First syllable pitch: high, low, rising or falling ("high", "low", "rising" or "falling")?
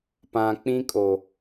low